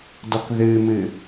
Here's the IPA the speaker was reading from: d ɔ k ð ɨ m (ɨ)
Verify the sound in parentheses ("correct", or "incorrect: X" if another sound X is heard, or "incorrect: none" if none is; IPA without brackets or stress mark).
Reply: correct